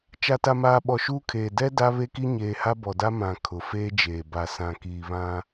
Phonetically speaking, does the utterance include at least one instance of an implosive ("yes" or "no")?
yes